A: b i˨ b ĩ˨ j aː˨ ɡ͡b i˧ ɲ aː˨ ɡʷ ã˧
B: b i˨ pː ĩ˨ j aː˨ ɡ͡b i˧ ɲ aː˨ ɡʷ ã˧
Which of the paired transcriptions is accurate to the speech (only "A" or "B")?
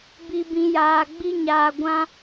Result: A